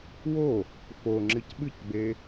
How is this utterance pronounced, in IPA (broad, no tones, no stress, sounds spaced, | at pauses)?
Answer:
w o | f o ŋ͡ǁ ɨ c ɓ ɨ c ɡ͡b e